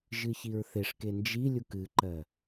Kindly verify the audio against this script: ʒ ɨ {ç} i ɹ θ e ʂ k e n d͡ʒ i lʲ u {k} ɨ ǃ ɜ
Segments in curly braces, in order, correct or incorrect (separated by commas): correct, correct